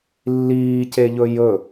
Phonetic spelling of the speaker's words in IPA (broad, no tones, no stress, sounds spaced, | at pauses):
lː iː c e ʎ ɵ j ɵ